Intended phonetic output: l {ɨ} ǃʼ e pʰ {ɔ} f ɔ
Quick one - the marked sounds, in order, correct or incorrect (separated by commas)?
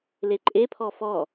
incorrect, correct